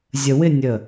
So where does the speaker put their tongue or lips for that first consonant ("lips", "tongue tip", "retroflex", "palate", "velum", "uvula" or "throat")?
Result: tongue tip